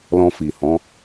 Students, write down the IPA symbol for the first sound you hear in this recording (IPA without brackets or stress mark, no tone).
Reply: l